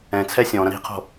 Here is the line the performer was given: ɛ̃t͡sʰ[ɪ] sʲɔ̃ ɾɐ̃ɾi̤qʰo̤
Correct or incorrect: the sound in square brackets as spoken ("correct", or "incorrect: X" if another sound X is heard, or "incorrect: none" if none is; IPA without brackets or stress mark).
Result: incorrect: ɛ